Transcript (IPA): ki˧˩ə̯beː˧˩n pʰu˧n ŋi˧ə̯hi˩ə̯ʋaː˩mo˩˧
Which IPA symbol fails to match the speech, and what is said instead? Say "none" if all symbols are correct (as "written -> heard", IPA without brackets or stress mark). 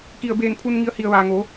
m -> ŋ